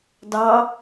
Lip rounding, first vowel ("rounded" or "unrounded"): unrounded